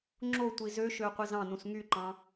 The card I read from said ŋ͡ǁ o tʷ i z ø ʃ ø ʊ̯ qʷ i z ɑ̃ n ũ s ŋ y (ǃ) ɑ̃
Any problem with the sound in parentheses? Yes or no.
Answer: no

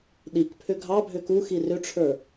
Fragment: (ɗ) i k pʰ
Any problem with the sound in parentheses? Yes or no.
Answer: no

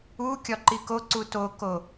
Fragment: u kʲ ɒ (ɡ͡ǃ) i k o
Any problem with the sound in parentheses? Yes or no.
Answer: yes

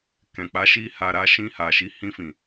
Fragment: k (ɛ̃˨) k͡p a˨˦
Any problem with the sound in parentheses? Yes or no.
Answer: no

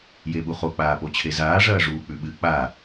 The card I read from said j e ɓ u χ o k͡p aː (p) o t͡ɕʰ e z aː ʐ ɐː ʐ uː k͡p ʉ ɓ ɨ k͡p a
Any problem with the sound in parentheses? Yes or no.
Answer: no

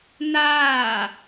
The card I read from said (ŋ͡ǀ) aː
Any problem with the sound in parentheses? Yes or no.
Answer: yes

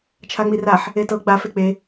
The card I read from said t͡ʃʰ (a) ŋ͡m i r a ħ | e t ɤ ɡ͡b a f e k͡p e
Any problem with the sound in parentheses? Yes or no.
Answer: no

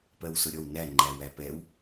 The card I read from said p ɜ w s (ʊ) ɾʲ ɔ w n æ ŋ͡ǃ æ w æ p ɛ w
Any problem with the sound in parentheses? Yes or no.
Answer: no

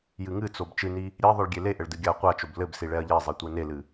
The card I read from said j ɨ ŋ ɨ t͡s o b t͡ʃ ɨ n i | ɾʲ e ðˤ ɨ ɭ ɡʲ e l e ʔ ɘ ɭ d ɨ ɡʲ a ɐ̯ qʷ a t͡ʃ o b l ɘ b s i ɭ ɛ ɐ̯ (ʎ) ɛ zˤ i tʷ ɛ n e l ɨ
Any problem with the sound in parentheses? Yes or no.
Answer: no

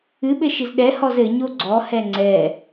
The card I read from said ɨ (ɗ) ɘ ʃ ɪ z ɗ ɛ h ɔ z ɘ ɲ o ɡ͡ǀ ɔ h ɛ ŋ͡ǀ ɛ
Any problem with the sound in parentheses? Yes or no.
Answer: yes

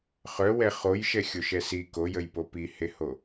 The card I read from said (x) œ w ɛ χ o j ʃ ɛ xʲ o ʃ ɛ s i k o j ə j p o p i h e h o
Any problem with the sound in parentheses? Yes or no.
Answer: yes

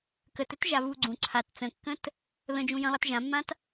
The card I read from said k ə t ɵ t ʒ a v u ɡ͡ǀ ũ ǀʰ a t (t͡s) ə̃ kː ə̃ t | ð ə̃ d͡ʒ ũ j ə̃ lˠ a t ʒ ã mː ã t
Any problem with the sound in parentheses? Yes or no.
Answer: no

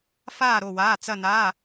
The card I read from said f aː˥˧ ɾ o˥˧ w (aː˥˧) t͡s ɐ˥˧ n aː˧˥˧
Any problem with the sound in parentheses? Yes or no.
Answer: yes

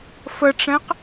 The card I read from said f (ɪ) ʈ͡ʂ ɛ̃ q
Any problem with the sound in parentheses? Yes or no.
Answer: yes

